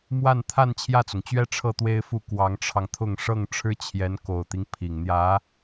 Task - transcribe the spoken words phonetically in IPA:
m w a˥˧ n t̪ʰ a˥˧ n t͡ɕʰ j ä˥˩ t͡s ʊ˩ ŋ t͡ɕ ɥ ɛ˥ ʈ͡ʂʰ ɤ˥˩ t̪ w e˥ ɪ̯ f u˥˩ k w ɑ˧˥ ŋ ʈ͡ʂʰ ɑ˧ ŋ t̪ʰ ʊ˥˧ ŋ ʂ ɤ˥˩ ŋ ʈ͡ʂʰ ɻ̩˥ t͡ɕʰ j ɛ˧˥ n k o˨˩ ʊ̯ t̪ i˦ ŋ pʰ i˨˩ ŋ n̪ j ä˧˥

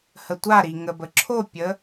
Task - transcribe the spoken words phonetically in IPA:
h ə tʷ a ɾ i ŋ ə b ə ǁʰ o pʲ ə

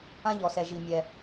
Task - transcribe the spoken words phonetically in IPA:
ã˥ ʎ ɔ˩ s ɛ˩ ʒ i˩ mʲ ɛ˩

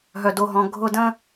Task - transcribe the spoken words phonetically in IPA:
ɦ œ˨ d o˨ ɦ ɔ̃˨ ɡʱ ʊ˧ d ə̃˦

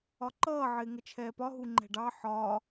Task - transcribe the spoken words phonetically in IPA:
ɒ ǃ ʌː ʕ ɪː ŋ ə t͡ʃʰ ɛː p ɒ ɦ u ŋ͡ǃ ɛ̤ ɖ ɑ ħ ɒ

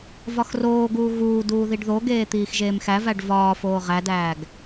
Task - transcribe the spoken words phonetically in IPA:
v ɒ x r oː ɡ uː ɣ uː d uː ð i ɖ ð o ɡ eː t̪ iː x ʒ eː m x æ v æ ɖ v ɒː f oː ʁ æ d æː ɡ

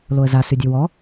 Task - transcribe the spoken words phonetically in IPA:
l o ə̯ z a s ʉ dʲ ʉ w ɔ

